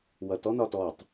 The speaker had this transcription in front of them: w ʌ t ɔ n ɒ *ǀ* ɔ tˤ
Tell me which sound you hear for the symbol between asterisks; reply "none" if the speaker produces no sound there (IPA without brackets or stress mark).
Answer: t